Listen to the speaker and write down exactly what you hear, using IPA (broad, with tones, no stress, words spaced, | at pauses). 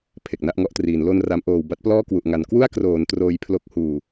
pʰe˨˩k̚na˥˩ʔŋɔ˦˥ʔtriː˩˦n lo˧nra˩˦mʔoː˨˩w ba˦˥t̚plɔː˥˩kwu˨˩ʔŋa˩˦n kwu˥˩a̯ kroː˩˦n troː˧jpʰlo˦˥k̚ huː˨˩